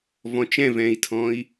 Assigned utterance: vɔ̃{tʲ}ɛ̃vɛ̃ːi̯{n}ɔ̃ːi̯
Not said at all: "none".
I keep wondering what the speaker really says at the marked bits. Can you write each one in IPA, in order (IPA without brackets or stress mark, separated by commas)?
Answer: t͡ʃ, tʰ